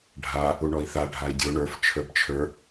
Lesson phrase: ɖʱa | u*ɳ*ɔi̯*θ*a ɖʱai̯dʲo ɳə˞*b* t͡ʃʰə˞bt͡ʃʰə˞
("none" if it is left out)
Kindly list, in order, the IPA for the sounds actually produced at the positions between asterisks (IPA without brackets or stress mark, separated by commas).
ɳ, θ, f